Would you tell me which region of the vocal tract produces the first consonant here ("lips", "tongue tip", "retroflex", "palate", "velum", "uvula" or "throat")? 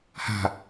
throat